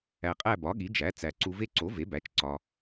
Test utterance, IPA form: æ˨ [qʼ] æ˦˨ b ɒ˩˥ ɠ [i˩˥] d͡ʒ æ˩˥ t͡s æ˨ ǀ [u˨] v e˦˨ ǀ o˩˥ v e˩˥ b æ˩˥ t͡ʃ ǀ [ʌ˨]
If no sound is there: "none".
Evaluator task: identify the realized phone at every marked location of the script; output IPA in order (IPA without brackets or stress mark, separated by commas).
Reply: qʼ, i˩˥, u˨, ɒ˨